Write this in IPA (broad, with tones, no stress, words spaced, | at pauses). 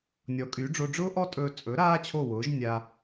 nʲɔ˩˥kʼy˩˥ɖ͡ʐo˧ ɖ͡ʐʊː˥ʔɔ˥tʼɵː˧ t͡sʼɵ˩˥ ɾaː˥t͡ɕʰo˥˩wʊː˩˥ʒ nʲa˧